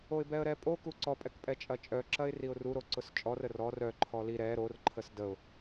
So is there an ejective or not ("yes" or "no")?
yes